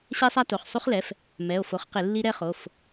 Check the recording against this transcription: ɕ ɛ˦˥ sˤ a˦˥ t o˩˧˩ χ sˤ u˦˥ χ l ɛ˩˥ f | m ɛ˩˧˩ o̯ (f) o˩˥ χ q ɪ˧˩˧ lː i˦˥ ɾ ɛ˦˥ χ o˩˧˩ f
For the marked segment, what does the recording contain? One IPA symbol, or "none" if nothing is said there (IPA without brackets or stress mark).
f